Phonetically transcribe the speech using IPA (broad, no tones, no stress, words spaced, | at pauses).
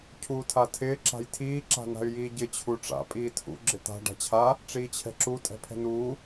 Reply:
cʰuːtʰatʰɪː ǁa̤jtʰiː ǁa̤na̤y̯jiːɟɪ t͡ɕʰuʈ͡ʂa̰ pʼiːtʰṵ ɡ͡ǁɪt̪a̤ ɖa̤t͡ɕʰa | ʈ͡ʂiːt͡ɕʰɛ̤ǁu tʼɛ̤pʰɛ̤nuː